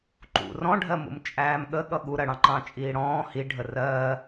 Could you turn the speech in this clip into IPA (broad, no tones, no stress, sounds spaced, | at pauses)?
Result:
ǃ ṵ r ɔ̃ ɖʱ ɜ m ṵ m t͡ʃʼ æː m ɠ ə ɠ ʌ ɠ u ɾ ɜ ɽ ɑ̃ ǃ ɑ̃ t͡ʃʼ iː ɽ ɔ̃ː h i ɖʱ ə r ɜ